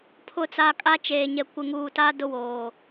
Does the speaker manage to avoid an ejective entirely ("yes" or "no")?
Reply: no